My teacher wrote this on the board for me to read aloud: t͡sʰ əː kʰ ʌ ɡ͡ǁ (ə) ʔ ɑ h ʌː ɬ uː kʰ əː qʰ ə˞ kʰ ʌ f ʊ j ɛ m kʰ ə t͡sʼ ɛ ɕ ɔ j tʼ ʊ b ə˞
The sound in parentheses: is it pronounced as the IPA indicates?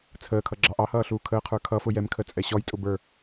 no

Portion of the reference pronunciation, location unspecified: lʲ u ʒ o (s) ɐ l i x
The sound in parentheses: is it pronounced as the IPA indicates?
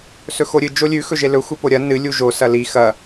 yes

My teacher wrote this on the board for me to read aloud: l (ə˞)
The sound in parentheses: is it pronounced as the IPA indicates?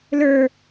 yes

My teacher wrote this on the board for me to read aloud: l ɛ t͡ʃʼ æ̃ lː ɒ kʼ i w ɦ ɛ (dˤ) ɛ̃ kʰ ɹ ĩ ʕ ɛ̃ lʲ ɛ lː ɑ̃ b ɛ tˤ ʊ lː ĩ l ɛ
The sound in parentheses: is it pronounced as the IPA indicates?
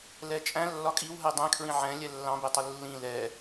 yes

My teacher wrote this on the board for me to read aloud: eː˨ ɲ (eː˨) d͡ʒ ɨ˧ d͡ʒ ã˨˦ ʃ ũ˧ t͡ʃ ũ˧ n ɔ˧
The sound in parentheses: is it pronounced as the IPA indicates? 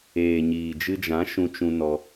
no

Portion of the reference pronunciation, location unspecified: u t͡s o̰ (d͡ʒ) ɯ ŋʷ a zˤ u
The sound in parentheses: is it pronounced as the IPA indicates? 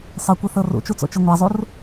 no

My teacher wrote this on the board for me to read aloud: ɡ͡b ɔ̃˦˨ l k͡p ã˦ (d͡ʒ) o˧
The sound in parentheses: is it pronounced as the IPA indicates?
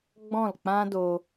no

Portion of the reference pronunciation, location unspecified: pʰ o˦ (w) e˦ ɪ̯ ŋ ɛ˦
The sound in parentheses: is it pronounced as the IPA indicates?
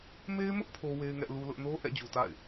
yes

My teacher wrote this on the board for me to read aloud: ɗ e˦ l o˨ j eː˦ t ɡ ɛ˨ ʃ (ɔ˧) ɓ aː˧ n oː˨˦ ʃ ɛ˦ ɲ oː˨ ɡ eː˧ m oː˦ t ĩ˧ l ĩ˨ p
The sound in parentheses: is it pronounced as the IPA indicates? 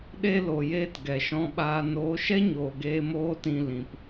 no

